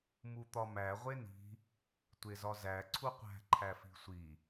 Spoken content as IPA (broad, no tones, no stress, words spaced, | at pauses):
mut̪ɒmæ ʁʷeni̤ | tʷezɒzæ ǀʰuqʷæ̤ ǃʰæfi̤sʷi